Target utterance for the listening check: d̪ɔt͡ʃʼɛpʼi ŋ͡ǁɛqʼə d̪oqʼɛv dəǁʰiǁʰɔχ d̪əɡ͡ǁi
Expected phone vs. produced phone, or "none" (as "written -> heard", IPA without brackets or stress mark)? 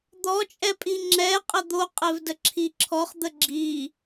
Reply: none